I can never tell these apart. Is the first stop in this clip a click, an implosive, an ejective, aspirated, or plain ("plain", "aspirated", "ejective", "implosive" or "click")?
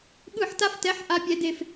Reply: implosive